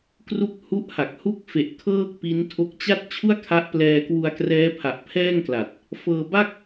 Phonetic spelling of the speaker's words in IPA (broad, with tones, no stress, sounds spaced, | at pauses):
k r u˦˥ k̚ h u˦˥ ʔ h a˨˩ k̚ h u˦˥ k̚ f e˨˩ ʔ kʰ ɤː˥˩ k̚ p i˦˥ n tʰ o˦˥ k̚ t͡ɕ a˥˩ t̚ t͡ɕʰ u˥˩ a̯ kʰ a˦˥ ʔ p l ɛː˧ k w u˧ a̯ k r ɛː˦˥ pʰ a˨˩ ʔ pʰ ɛː˥˩ ŋ k l a˨˩ t̚ | f ɤː˧ b a˥˩ k̚